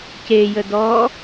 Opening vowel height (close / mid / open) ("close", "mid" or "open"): mid